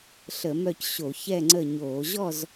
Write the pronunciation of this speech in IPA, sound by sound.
ɬ ə˧˩˧ m œ˦˨ c ɕ o˧˩˧ ç ɛ˦˨ ŋ͡ǀ ə˦˨ ɲ oː˧˩˧ ʑ ɔ˦˨ z

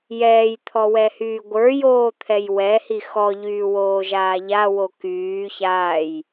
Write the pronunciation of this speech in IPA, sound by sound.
j ɛː j t̪ʰ ɔ w ɛ h yː ɡʷ ə˞ j oː t̪ʰ ɛ j w ɛ h i x ɔ ʎ yː w oː ʒ aː ʎ a w o k yː ç aː j

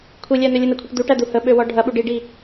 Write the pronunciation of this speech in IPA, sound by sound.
kʷʰ i lʲ æ n ø lʲ ə n ɐ kʷʰ i ʈ d̪ u ʈ æ d̪ u h ə ɓ ø w ɔ ɖʱ ɐ ɓ u ɖ i ɖ i

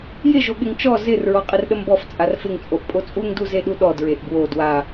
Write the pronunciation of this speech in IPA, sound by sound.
j ɪ ʒ o ɠ ɪ ŋ t͡ʃ ɔ z ɪ r ɹ ɔ qʼ ɪ r ɗ ə m b ɔ f t͡sʼ a r f ɪ ŋ t͡sʼ o ʔ pʼ o t͡sʼ u ŋ d u z e ɗ u ɗ ɔ d ɹ e ʔ b w o d w a

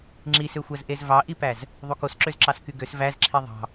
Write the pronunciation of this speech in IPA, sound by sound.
ŋ͡ǁ i s ø xʷ æ z ʔ e z v ɑ ʔ i p æ z | ðˤ u k o s ǁ ø z ǁ ɑ s k y ɡ ø s v æ z ǁʰ i ðˤ ɑ̤

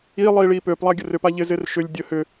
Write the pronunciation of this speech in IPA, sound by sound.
i lˠ iː ɭ iː p øː p lˠ a ɡʲ ə r ʏ p a ʎ ɪ z ɪː r ʃ ʏ lʲ dʲ ə h ʏ

